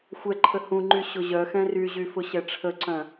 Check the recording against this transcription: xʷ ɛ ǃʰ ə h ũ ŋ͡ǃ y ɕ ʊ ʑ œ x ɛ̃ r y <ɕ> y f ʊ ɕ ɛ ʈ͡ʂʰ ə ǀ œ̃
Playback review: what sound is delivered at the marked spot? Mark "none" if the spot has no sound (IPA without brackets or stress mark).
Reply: ʑ